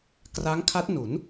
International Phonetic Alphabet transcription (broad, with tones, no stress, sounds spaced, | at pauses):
k r a˦˥ ŋ kʰ a˦˥ t̚ n u˩˦ n